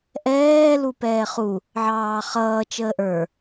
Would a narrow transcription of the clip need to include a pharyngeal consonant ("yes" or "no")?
yes